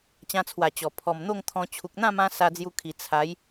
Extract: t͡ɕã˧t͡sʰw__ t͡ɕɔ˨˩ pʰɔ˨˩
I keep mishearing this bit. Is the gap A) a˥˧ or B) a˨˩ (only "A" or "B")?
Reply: B